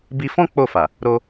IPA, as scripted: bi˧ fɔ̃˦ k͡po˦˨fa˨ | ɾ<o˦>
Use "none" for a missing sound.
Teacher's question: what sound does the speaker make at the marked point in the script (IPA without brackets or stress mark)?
o˧